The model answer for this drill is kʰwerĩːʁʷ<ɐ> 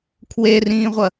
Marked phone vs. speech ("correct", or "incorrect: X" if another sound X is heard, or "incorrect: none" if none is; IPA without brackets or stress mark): correct